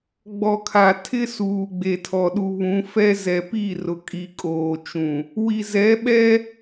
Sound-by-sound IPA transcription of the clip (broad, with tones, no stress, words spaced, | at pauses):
ɡ͡bɔ˨kʰa˨ tʰɪ˦suː˨ ɡ͡be˨tʰɔ˨ɗu˨ βũ˨˦fɛ˦ zɛ˨pi˦˨rʊ˨kʼi˨ kʼoː˨t͡ʃũ˨ | wi˨zɛ˨˦ɓɛ˦